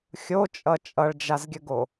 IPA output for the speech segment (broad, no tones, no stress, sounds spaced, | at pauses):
xʲ o t͡ʃʼ ʌ t͡ʃʼ ʌ ɭ d͡ʒ a z ɡʲ ə ɡ o